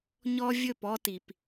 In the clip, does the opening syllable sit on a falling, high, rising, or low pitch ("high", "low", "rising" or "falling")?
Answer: high